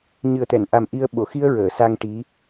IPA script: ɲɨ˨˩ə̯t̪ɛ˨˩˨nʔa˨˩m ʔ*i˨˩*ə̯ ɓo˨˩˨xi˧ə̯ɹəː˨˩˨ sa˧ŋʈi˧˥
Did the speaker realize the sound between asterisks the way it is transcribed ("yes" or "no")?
no